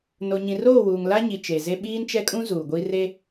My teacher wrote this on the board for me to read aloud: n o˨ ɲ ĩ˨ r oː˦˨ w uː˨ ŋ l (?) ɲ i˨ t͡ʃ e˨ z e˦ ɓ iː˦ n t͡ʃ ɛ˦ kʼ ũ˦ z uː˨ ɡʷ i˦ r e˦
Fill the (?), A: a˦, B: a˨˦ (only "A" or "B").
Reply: A